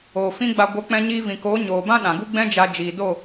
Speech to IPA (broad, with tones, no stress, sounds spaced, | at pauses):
oː˨ f ĩ˦ ɡ͡b a˧ ɡʷ ə˨˦ k͡p ɛ̃˧ ɲ iː˧ v ĩ˨ k oː˨˦ ɲ oː˨ b ã˦ ɗ ã˨ ɡ u˦ ɡ͡b ɛ̃˦ d͡ʒ a˧ d͡ʒ iː˨ d o˦˨